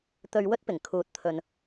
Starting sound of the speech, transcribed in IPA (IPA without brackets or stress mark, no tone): t̪